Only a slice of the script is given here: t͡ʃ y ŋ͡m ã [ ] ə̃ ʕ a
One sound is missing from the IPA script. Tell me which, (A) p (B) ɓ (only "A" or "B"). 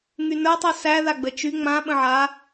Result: B